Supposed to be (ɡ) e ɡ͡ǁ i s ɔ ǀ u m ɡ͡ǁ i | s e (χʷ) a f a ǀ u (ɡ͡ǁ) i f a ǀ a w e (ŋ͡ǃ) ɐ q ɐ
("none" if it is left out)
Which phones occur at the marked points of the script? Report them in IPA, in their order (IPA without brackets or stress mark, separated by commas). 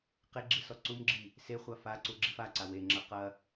q, χʷ, ɡ͡ǁ, ŋ͡ǁ